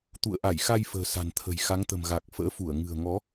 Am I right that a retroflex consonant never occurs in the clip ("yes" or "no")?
yes